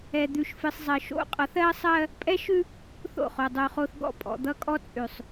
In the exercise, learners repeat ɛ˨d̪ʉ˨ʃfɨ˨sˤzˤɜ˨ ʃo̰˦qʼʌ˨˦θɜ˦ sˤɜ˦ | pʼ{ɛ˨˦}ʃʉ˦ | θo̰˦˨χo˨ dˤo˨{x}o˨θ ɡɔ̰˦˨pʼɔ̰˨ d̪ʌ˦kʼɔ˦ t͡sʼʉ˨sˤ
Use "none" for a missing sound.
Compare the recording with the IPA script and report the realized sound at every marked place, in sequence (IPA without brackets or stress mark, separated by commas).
ɛ˦, χ